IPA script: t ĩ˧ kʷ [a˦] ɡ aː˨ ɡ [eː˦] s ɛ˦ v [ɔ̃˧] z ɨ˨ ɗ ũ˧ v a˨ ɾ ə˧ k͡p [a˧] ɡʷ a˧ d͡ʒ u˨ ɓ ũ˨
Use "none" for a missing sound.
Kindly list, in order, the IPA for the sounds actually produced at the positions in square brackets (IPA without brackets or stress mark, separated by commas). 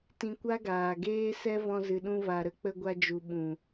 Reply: a˦, eː˦, ɔ̃˧, ə˧